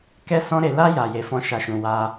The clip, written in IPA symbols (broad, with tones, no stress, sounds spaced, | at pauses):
k ɛ˦ s ɔ̃˦ ɾ e˧ l a˧ j a˨ j e˧ f ɔ̃˦ ʃ a˦˨ ʃ ũ˧ w a˧